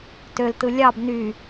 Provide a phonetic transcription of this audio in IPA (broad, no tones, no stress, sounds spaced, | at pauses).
t ø l t ɯ lʲ ɑ b n y